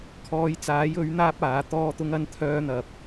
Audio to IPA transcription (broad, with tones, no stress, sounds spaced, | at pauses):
kʰ ɔː˨˧ j t͡s aː˨˥ j ɵ˨˥ ɥ n̪ aː˥ p̚ aː˨˥ t̪ ɔː˥ t̪ ʊ˥ ŋ ɐ˥ n t̪ʰ œː˥ n̪ ɐ˧ p̚